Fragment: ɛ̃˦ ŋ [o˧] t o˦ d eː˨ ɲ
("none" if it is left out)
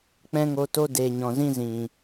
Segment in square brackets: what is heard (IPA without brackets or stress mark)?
o˧